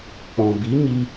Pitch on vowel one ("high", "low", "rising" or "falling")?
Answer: low